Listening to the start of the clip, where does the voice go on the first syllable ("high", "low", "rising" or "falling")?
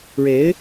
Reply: rising